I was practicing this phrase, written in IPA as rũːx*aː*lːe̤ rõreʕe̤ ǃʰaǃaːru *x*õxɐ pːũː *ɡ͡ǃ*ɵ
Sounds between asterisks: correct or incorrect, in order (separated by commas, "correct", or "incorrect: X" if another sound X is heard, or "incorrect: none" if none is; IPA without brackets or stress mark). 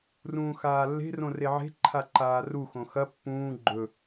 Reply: correct, correct, correct